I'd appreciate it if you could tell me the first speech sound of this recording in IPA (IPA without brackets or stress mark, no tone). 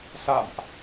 s